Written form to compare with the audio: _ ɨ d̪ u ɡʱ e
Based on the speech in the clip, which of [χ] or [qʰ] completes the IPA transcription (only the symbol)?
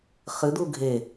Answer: χ